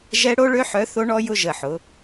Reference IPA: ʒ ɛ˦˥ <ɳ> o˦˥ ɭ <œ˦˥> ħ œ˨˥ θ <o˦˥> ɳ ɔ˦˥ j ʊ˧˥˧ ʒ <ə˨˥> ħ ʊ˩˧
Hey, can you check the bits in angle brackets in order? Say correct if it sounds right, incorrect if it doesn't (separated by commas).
incorrect, incorrect, correct, incorrect